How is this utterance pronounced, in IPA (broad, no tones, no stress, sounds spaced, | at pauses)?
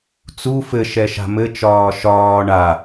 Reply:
t͡s u f ɘ ʃ ɛ ʃ a̤ m ɘ t͡ʃ ɒː ʃ ɒː ɳ a